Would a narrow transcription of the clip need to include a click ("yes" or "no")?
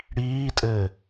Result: no